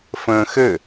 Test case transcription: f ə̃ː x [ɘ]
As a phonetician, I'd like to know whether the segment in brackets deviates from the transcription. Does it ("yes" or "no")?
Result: no